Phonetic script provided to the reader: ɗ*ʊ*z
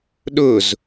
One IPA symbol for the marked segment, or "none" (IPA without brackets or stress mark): ʊ